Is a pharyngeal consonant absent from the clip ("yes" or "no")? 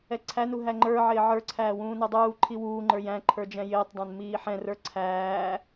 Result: no